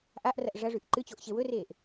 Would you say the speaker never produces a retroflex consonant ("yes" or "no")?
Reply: no